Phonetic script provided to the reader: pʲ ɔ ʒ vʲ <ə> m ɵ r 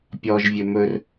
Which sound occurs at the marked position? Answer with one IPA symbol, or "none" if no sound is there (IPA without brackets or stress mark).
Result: ɵ